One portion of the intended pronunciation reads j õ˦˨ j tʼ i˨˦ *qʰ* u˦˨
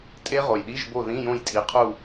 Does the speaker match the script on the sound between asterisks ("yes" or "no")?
yes